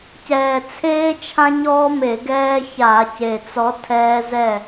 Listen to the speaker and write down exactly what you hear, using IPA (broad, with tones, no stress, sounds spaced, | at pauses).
c ɛː˨˩ t͡sʰ eː˦ t͡ʃʰ ã˦ ɲ ɔː˦ m e˧˩˧ ɡ ɛː˦ ç a˧˩˧ c e˨˩ t͡s ɔ˨˦ tʰ ɛː˦ z ɛ˥˨